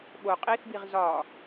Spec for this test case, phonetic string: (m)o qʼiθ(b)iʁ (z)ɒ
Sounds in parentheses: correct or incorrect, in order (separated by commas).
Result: incorrect, correct, correct